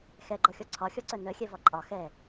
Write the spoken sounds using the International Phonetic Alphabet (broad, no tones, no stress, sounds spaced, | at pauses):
x ɛ ɡ͡ǃ ɔ xʲ ɔ ǀʰ ɒ xʲ ɔ ǀ œ n œ xʲ ɛ v ɒ ǃʼ ɒ x ɛ